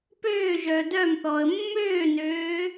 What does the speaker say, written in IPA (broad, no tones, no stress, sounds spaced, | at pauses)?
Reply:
p øː ʒ œː d œ m θ ɔː ə̯ mː øː n øː